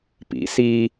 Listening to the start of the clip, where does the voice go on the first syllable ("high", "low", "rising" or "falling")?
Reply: rising